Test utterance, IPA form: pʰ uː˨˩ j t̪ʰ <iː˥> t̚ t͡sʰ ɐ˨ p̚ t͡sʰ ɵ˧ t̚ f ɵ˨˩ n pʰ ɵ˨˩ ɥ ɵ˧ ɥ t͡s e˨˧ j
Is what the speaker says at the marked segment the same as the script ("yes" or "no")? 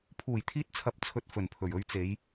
no